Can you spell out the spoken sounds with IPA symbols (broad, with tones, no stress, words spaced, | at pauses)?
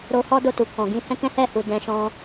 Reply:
ɾo˧hɔ˦do˦˨tu˨ kɔ̃˨ɡĩ˧ hɛ̃˦kɛ̃˦hɛ˦˨hu˨ dɛ̃˧ʃɔ̃˦